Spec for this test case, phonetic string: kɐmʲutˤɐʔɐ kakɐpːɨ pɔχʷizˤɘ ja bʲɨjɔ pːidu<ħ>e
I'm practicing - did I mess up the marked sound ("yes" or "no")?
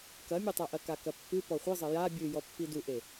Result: yes